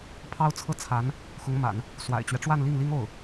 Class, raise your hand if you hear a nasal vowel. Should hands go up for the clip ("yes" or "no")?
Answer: no